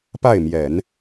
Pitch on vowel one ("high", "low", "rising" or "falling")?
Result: falling